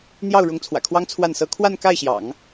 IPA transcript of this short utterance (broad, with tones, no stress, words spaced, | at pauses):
n̪jɑ˥˩ʊ̯ ɻʊ˧˥ŋt͡sʰwä̰˨˩kʰwɑ˥ŋ t͡sʰwa˥˩nsɤ˥ kʰwa˥˧nka˥˩ɪ̯ɕjɑ̰˨˩˦ŋ